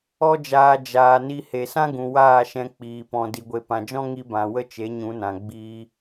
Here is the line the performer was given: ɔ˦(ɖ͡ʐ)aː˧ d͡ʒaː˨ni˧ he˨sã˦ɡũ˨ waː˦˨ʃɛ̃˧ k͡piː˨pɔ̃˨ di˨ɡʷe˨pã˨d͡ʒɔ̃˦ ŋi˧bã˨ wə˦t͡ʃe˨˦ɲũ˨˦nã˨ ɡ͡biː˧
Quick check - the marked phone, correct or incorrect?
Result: incorrect